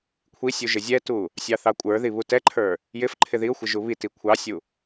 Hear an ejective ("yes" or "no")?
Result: yes